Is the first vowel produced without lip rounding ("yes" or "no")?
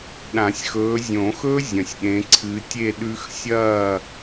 yes